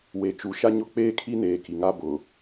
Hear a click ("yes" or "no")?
no